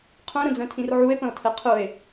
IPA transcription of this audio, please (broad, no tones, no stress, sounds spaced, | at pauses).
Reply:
qʰ œ̃ ɾ ə̃ d͡z œ̃ tʰ ĩ r ʕ u e̯ p ə̃ o̯ tʰ ɛ qʰ ʊ e̯